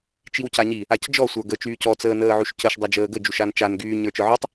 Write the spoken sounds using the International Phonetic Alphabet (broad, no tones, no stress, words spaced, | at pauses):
t͡ʃiwcaɲi | acd͡ʒɔ sʷə˞ɡə t͡ʃyːcɔ t͡səːnəːʕyʃcəʃ dˤad͡ʒəːɡə d͡ʒuʃant͡ʃan ɡyː ɲə˞t͡ʃə˞ʕytˤ